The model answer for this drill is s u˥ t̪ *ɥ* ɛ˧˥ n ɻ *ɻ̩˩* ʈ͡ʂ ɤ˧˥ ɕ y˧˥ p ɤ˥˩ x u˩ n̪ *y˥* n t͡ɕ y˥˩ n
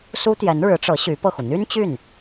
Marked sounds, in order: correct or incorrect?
incorrect: j, incorrect: ɻ̩˧˥, correct

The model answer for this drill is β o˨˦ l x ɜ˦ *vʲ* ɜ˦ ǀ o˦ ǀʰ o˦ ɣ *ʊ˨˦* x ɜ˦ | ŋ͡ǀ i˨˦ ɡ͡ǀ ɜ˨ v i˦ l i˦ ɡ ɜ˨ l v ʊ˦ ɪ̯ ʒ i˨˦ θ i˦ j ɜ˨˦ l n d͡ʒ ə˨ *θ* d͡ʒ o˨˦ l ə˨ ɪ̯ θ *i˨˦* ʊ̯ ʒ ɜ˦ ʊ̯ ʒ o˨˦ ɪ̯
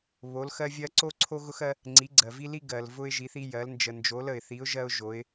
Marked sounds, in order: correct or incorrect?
correct, incorrect: ʊ˦, incorrect: n, correct

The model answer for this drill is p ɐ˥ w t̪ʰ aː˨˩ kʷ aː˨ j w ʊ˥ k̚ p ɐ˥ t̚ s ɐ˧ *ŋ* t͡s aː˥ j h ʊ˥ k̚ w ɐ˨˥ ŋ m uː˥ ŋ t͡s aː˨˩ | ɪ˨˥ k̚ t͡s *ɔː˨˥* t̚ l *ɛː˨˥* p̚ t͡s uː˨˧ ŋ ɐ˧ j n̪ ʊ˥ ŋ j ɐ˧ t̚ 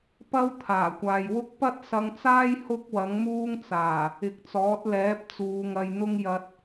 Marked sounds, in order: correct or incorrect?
correct, correct, correct

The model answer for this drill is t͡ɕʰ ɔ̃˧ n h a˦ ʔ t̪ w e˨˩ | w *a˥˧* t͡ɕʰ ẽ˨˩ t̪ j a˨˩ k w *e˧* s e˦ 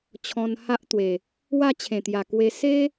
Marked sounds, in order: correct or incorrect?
correct, correct

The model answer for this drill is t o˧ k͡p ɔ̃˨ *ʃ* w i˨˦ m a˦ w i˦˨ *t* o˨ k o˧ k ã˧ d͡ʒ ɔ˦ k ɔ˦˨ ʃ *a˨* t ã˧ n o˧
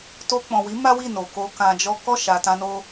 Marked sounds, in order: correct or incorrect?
incorrect: none, incorrect: n, correct

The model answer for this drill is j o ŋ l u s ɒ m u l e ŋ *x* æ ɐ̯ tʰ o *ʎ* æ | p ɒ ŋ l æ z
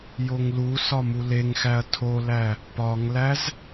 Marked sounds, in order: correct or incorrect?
correct, incorrect: l

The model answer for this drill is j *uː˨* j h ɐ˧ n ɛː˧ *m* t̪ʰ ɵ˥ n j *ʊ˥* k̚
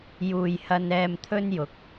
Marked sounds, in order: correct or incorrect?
correct, correct, incorrect: ʊ˨˥

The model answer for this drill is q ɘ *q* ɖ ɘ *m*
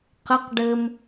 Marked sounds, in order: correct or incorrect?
correct, correct

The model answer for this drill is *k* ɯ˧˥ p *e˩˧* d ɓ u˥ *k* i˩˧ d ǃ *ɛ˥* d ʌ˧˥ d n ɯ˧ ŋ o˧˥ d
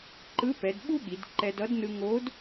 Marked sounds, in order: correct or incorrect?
incorrect: ǃ, incorrect: ɛ˩˧, incorrect: ɠ, incorrect: ɛ˧

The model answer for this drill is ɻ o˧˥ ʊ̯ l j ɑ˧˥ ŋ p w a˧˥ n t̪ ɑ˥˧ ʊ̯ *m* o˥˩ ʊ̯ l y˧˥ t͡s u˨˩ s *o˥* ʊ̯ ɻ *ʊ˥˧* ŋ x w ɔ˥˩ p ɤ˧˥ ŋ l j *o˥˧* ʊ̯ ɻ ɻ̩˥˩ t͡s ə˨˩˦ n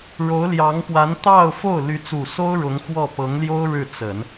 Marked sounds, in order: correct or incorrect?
incorrect: f, correct, incorrect: ʊ˧˥, incorrect: o˥

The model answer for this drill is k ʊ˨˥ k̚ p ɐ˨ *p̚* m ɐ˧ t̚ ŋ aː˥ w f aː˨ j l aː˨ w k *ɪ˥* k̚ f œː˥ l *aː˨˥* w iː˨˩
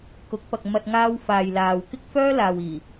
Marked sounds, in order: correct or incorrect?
incorrect: k̚, correct, incorrect: aː˨

